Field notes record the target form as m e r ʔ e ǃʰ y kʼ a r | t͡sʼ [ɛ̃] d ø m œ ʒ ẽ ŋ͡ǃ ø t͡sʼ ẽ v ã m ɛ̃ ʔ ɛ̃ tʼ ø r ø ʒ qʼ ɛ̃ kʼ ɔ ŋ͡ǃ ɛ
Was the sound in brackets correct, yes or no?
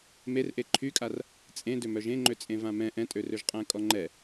no